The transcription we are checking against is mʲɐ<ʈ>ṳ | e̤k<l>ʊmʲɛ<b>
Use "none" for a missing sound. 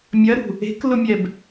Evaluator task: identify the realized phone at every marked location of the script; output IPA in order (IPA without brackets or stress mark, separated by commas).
ɾ, l, b